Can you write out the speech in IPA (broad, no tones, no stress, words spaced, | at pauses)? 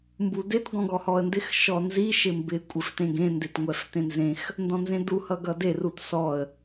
mbudet ɡɔ̃ɡɔhɔə̯ndɪx ʃɔnzi ʃɪmbɪ kʷʼɪftẽɡẽ ndetŋʷɛftẽnzẽx | ndɔ̃nzẽdu hʌɡʌde rutsɔə̯